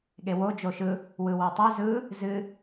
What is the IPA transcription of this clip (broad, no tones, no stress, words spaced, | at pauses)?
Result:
ɠewo d͡ʒoʃɯ | wɯwotˤi zɯ | zɨ